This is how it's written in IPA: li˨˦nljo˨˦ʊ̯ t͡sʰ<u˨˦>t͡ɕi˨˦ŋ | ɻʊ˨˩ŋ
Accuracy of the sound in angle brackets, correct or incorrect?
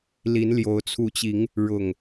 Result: correct